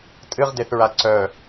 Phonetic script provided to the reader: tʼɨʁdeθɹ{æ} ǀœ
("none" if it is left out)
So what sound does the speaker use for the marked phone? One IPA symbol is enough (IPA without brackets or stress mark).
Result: a